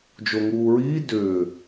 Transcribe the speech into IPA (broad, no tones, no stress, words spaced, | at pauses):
d͡ʒoŋuːɹiː dʏː